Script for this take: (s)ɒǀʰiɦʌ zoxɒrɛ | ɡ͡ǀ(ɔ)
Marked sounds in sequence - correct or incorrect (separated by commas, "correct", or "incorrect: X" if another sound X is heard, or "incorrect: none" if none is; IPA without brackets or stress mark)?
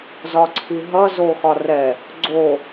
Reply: incorrect: z, incorrect: o